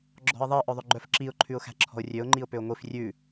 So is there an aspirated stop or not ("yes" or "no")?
yes